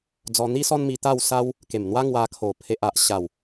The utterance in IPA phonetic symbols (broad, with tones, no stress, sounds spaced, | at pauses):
d͡z ɔ˧ n̪ i˦ s ɔ˦ n m i˧ t̪ a˥˧ w s a˦ w | k e˨˩ m n̪ w a˦ ŋ w a˧ kʰ o˨˩ pʰ e˨ ʔ a˨ ʔ ɕ a˨˩ w